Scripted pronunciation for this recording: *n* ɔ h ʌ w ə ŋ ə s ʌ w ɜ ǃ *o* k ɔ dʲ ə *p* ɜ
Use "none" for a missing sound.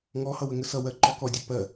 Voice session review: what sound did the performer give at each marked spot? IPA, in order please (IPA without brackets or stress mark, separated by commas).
ŋ, ɔ, p